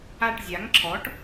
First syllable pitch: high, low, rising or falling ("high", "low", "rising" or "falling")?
falling